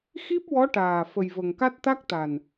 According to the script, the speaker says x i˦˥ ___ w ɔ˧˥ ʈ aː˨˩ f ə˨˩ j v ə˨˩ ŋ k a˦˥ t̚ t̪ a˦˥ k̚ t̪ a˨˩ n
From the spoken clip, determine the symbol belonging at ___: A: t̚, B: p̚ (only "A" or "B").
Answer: B